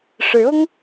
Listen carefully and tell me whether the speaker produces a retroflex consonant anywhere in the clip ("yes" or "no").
yes